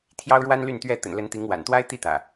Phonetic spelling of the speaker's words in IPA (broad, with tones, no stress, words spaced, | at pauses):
t̪ʰjɑ˦ʊ̯ɻwa˦nly˥˨nt̪ɥɛ˥˨ t̪ə̰˨˩nlə˨˦nt̪i˨˦ŋ wa̰˨˩nt̪wa˦ɪ̯t̪i˥˨t̪ä̰˨˩